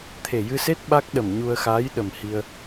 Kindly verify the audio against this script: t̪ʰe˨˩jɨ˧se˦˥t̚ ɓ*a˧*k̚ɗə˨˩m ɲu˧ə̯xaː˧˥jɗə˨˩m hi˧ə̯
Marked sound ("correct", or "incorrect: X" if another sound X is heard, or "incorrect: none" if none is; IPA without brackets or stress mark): incorrect: a˦˥